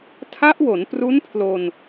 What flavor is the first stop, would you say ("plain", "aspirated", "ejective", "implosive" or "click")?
aspirated